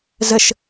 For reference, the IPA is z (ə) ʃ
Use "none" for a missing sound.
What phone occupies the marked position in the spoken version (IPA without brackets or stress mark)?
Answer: ə